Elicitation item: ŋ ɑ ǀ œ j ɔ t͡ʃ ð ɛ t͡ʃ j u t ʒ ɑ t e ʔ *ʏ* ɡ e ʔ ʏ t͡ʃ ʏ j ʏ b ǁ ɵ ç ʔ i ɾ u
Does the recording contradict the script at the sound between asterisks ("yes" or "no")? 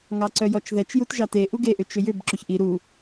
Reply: yes